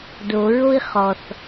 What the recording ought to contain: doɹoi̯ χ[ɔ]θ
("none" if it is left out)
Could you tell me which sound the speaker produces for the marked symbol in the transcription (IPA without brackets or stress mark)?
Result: ɔ